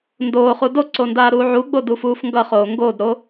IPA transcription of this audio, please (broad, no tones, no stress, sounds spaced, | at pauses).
n d oː χ u d o ǀ o n d aː ɾ uː ʕ u ɡ͡b o d u f uː f ŋ ɡ ʌ χ oː ŋ ɡ oː d ɾ o